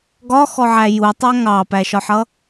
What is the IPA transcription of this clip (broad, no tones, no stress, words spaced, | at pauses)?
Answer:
ɡɒxɔʕæ jutˤæ ŋɑpæʃɒħʌ